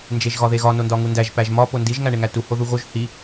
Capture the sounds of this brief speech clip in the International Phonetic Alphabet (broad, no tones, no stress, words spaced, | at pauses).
nd͡ʒeʒɣɒðeɣɒ nondɒŋundæʒ pæʒmɒ pondiʒ ŋæɳeŋætu hoðuɣoʒ hi